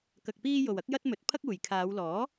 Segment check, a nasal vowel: absent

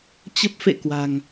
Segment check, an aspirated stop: absent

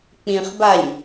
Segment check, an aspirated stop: absent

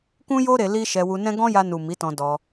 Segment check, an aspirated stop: absent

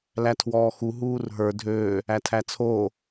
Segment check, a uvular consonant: absent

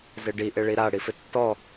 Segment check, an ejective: absent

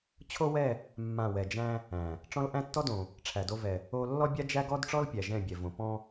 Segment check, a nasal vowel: present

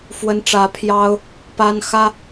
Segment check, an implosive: absent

